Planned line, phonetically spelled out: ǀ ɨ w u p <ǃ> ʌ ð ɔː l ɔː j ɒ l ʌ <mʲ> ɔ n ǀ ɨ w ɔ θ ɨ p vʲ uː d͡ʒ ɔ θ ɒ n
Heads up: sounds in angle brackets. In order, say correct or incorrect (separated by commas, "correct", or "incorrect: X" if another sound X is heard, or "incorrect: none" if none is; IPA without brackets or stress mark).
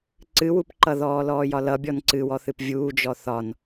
correct, incorrect: bʲ